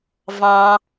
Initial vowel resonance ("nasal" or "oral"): nasal